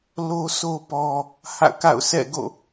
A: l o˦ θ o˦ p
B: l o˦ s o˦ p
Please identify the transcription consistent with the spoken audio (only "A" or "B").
B